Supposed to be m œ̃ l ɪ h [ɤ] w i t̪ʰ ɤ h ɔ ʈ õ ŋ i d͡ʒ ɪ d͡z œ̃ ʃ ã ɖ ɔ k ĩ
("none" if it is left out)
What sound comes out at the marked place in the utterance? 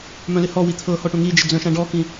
ɔ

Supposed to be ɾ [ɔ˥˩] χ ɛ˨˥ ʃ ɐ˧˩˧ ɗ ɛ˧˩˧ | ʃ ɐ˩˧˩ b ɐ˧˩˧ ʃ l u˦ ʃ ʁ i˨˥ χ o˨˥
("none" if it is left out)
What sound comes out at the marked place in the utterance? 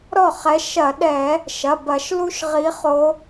ɔ˥˩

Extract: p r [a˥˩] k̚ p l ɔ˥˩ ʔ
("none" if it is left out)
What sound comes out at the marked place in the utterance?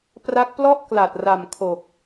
a˦˥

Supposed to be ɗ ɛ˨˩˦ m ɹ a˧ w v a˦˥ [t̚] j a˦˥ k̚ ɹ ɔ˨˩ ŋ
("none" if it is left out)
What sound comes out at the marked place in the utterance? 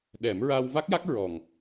k̚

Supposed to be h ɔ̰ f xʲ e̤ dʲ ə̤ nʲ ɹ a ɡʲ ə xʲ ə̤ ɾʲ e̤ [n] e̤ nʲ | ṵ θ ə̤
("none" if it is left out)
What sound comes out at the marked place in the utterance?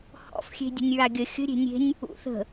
nʲ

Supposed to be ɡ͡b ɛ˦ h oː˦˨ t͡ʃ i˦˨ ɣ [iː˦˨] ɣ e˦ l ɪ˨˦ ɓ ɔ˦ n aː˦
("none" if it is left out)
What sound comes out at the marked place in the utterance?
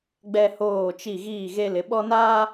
iː˦˨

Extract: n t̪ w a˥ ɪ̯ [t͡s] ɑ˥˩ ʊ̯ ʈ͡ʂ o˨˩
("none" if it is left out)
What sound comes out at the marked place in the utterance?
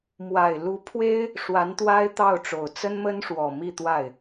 t̪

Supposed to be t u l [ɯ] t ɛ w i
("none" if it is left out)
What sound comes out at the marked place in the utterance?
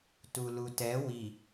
u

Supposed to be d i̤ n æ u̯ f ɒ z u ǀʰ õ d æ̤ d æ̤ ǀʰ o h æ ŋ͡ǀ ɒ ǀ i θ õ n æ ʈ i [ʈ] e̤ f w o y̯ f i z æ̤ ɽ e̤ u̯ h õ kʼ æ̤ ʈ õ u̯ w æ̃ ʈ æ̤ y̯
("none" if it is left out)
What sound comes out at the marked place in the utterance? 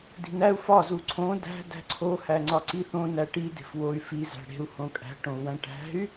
d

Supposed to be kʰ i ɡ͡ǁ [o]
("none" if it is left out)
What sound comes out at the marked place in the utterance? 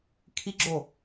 o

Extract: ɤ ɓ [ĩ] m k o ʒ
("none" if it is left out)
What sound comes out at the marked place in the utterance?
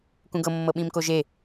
ĩ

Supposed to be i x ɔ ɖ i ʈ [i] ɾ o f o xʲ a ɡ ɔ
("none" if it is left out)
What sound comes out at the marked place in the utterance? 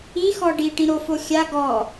ĩ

